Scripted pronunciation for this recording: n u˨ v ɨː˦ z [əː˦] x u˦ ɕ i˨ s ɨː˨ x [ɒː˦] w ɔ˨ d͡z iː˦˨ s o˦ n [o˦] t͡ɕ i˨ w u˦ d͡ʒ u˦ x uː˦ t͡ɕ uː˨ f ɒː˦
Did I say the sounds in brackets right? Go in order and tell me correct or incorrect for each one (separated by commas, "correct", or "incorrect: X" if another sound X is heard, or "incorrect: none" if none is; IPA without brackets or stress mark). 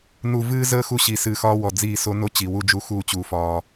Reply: correct, correct, correct